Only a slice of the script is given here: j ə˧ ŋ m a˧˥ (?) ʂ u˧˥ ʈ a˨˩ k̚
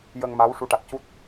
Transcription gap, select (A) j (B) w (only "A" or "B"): B